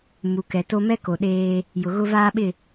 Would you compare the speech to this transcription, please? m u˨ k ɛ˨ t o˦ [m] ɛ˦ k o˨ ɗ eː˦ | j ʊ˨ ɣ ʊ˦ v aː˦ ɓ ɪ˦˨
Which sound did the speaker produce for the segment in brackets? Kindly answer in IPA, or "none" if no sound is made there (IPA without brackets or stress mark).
m